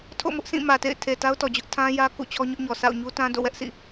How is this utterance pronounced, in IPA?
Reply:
tʰ o̰˦˨ m ʊ˦ ʔ s ĩ˦˨ m ä˨ t ḛ˦˨ ɪ̯ tʰ e˨ t a˦ ʊ̯ t ɔ˨ d͡ʑ ʊ˦ ʔ tʰ ã˦ j ä˦ k ṵ˦˨ t͡ɕʰ ɔ˦ ɲ ʊ˦ ʔ ɲ ɔ˨ s a̰˦˨ ʊ̯ ɲ u˦ t ã˦ d o̰˦˨ w ɛ˦ ʔ s ḭ˦˨

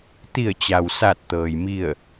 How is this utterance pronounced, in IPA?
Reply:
t̪ i˧˩ ə̯ t͡ɕ a˩ w s a˧˩ t̚ t̪ ɤː˩ j m i˧˩ ə̯

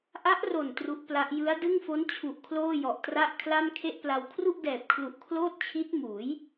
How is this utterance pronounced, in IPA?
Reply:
ʔ a˦˥ ʔ r o˨˩ n t r u˦˥ ʔ p l a˦˥ ʔ j ɯ˦˥ a̯ d ɯ˥˩ ŋ f o˦˥ n t͡ɕʰ u˨˩ ʔ kʰ l oː˥˩ j ɔ˨˩ ʔ t r a˥˩ ʔ kʰ l a˥˩ m kʰ e˥˩ ʔ p l a˧ w kʰ r u˥˩ ʔ d ɛː˨˩ p̚ kʰ l u˨˩ ʔ kʰ l oː˥˩ t̚ t͡ɕʰ i˦˥ t̚ m uː˩˦ j

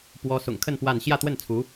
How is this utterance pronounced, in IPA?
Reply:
p w ɔ˥ s ʊ̰˨˩ ŋ kʰ ə˥˧ n p w a˥˧ n ɕ j ä˥˧ t̪ w ə˥˩ n t͡sʰ u˧˥

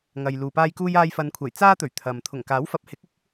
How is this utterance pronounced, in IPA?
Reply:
ŋ ɐ˨ j l uː˨ p aː˥ j k uː˥ j aː˧ j f ɐ˨˧ n kʷʰ ɐ˨˩ j t͡s aː˥ t̪ ɵ˨˩ ɥ t̪ʰ ɐ˨ m t̪ʰ ʊ˨˩ ŋ k aː˨˥ w f ɐ˨˥ p̚ h ɪ˨˥ k̚ ɪ˥ k̚

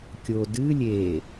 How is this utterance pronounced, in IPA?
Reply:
kʲ o d ɨ lʲ e

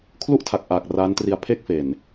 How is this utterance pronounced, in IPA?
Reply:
kʰ l u˥˩ ʔ tʰ a˨˩ k̚ ʔ aː˨˩ k̚ r a˦˥ n t r i˧ a̯ pʰ e˥˩ k̚ f e˨˩ n

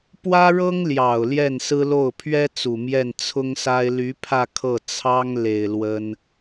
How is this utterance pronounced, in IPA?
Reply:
p w ä˥ ɻ ɤ˥ ŋ l j ɑ˨˩ ʊ̯ l j ɛ˥˩ n s ɹ̩˥ l o˥˩ ʊ̯ pʰ ɥ ɛ˥ t͡s u˨˩ m j ɛ˥˩ n t͡sʰ ʊ˥ ŋ s a˥ ɪ̯ l y˧˥ pʰ ä˥˧ kʰ ɤ˥˩ t͡sʰ ɑ˥ ŋ l e˨˩ ɪ̯ l w ə˥ n

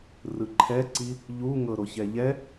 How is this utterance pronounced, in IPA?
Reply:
r ɯ ǃʰ ɛ ǀ i | ʎ u ŋ ɤ ɾ o ç ɛ ʎ ɛ

